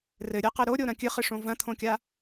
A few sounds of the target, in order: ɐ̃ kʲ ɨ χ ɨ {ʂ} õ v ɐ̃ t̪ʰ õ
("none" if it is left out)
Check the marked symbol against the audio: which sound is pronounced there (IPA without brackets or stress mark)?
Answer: ʂ